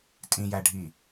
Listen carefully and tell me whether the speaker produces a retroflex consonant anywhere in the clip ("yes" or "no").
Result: yes